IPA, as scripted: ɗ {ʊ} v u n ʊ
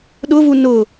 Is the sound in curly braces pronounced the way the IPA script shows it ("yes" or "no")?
yes